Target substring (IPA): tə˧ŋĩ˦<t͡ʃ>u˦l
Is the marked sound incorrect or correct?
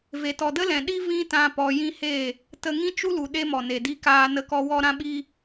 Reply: correct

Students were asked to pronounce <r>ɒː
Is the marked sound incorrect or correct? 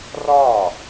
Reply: correct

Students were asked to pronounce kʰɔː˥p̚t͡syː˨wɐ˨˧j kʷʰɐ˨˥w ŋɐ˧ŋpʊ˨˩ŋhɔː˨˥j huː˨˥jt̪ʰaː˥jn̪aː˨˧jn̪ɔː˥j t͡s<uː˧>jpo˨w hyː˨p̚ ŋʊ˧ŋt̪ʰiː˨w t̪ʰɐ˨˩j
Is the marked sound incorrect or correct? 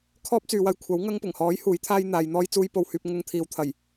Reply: correct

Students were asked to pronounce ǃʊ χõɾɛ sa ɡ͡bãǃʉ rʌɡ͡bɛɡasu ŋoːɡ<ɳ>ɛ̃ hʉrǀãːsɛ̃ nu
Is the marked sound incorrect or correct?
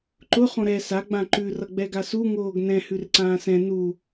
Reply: incorrect: n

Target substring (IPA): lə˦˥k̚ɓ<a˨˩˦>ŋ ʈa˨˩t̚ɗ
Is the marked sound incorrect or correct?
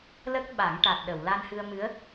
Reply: correct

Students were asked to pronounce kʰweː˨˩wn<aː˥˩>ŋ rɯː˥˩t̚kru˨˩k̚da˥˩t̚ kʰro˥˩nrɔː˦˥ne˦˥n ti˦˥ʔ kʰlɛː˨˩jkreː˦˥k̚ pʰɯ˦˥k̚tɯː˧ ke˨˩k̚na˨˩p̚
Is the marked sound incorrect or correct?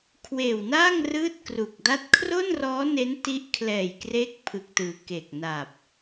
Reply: correct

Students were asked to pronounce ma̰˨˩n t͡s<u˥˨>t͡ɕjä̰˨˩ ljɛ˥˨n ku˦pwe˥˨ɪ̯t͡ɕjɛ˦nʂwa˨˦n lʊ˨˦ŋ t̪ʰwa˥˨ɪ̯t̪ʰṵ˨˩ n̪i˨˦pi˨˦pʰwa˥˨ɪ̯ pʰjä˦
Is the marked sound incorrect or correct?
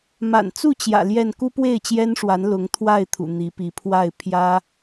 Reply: correct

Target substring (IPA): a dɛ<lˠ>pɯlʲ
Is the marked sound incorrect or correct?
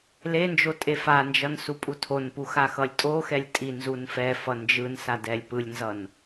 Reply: incorrect: lʲ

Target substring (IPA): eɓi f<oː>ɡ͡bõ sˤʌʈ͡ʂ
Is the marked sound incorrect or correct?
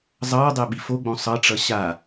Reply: incorrect: o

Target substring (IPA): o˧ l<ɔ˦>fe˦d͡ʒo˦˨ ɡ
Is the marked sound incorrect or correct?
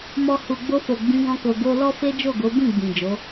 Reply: correct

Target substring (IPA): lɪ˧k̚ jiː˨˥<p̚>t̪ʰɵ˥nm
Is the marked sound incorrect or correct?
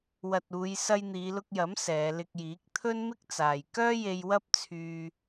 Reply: incorrect: k̚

